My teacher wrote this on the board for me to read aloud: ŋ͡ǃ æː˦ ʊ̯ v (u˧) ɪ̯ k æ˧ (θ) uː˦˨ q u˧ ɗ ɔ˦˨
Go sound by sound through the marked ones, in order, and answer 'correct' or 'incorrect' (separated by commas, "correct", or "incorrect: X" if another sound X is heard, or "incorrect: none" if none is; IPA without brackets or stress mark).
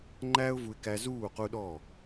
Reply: correct, incorrect: z